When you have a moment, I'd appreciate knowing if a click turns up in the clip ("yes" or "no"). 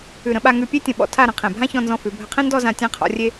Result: no